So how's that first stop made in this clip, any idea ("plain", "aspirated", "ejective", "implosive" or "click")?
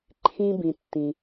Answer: click